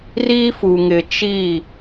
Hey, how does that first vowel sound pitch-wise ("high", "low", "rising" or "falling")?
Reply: high